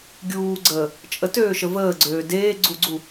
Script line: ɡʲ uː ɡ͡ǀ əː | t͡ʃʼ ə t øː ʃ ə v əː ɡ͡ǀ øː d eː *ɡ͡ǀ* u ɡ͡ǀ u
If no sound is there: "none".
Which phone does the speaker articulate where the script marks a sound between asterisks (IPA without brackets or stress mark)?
ɡ͡ǀ